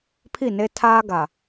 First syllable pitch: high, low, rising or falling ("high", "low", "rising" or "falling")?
falling